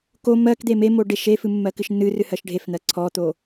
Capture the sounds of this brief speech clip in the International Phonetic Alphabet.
k o m ɜ k d̪ e m e m o ɖ e ʃ e f ɨ mː ɜ k ɨ ʃ nː ɨ r ɨ h ɜ ʃ ɖʱ e f n̪ ɜ ǀʰ ɔ t̪ o

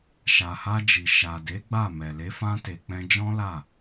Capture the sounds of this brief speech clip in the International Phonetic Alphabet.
ʃ a˨ h a˧ d͡ʒ i˨ ʃ a˨ d e˨˦ ɡ͡b a˦˨ m ɛ˨ l e˨˦ f ã˦ t e˧ k͡p ɛ̃˧ d͡ʒ ɔ̃˦ l a˦˨

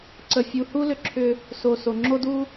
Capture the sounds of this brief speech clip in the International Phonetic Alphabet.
ǀ ə˨ fʲ u˨ h u˦ l ʏ˧ ǁʰ ʏ˧ | s o˨ s o˨ ŋ͡ǁ o˦ d u˦

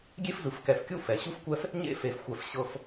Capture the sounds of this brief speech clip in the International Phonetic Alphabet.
ɡʲ e˦ f z ɯ˨ f k ɛ˨ f kʲ u˦ f ɛ˨ ɕ u˦ f kʷ ɛ˦ f | ɲ ḛ˦ f e˨ f xʷ ɛ˨ f ɕ ɤ˦ f

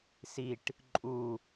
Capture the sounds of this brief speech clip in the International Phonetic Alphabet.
s i ʈ | ǃʼ u

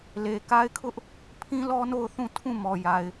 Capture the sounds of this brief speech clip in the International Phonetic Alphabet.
l e˨ k a˦ ɪ̯ kʰ ʊ˦ ʔ | pʰ ĩ˦ l ɔ˦ n o˦˨ ʊ̯ θ ũ˦˨ tʰ ũ˦˨ m ɔ˨ j a˨ ɪ̯

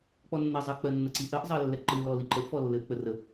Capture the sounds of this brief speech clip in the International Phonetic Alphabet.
k͡p ɔ nː ɘ zˤ ɘ k͡p ɜ nː ə ǀ i ʔ ɜ ʔ zˤ ɜ lː ɛ ǃ ɯ l ɔ l i ǃ ə ʔ f ɔ lː ɘ ʔ k͡p ə r ə

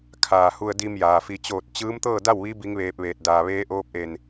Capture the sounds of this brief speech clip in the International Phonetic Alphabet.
kʰ aː˧˩ h u˧ ə̯ d i˧ m j aː˩ f i˧˩ t͡ɕ oː˥˨ t̚ t͡ɕ ɯː˧˥ m t̪ ɤː˥˨ d a˥˨ w ʋ i˧˥ b i˧˥ ŋ ʋ eː˧ p̚ ʋ eː˧˩ t̚ d aː˧˩ ʋ eː˧˥ ʔ oː˧˥ p̚ ʔ e˧˩ n

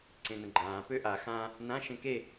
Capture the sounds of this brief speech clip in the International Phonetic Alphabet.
ǀ ẽ n ə̃ ɡ͡ǃ ãː p ø ʔ a x ã | n ã ʃ ẽ k e

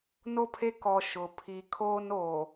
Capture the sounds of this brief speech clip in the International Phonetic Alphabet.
n o˦˨ pʰ e˦ k ɔ˨ ʃ ʊ˨ pʰ i˨ kʰ oː˦ n oː˨

